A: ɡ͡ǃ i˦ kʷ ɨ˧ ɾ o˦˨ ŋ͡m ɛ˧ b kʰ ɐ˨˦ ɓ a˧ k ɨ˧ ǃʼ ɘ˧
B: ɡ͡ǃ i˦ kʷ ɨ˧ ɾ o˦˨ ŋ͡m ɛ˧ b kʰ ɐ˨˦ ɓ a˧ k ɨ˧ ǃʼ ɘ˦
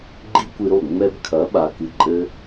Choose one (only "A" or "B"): B